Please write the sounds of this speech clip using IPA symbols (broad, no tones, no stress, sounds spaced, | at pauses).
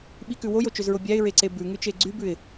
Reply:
ɓ i k ʉ w o j o t͡ʃ ø z ɹ o bʲ æ ɪ̯ ɹ e ǀ e b ʉ ŋ ʉ t͡ʃ e ɡ͡ǀ y b ʉ ɪ̯